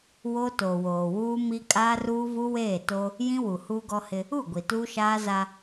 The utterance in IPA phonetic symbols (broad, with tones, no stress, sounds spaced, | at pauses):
w o˦ t o˨ w oː˨ w uː˦ m i˦ kʼ aː˦ r uː˦ v u˦ w eː˦˨ t o˦ | j ĩ˦ w u˨ h uː˦ ɡ ɔ˦ h ɪ˦ | u˦˨ ɡʷ i˨ t uː˦ ʃ aː˦ z a˦